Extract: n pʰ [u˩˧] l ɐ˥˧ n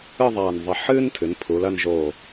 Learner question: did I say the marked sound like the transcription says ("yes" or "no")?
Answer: yes